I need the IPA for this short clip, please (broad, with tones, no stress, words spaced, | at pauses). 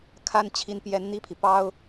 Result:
kʰa˥n t͡ɕʰi˧˥npjɛ˧˥n n̪i˥˩pʰi˩ pɑ˥ʊ̯